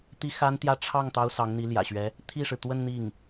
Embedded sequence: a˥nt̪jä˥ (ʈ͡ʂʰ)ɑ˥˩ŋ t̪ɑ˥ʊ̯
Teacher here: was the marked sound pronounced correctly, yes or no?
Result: yes